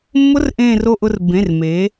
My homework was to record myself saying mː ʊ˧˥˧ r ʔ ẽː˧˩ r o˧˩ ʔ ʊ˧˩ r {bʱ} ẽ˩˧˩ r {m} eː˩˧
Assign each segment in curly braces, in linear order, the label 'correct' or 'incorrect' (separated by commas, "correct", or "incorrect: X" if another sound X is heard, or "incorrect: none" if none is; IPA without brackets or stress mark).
incorrect: b, correct